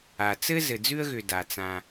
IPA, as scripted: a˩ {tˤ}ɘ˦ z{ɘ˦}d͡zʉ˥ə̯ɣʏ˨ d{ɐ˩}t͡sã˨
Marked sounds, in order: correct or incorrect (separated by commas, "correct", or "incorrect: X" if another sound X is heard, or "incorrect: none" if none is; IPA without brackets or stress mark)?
incorrect: t͡s, incorrect: ɘ˨, incorrect: a˩